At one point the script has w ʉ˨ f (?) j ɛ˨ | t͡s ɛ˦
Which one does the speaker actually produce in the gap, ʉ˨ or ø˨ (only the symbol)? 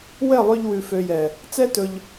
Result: ø˨